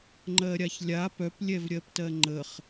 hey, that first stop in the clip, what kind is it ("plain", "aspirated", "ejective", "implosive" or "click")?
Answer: click